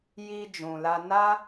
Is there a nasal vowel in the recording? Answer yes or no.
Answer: yes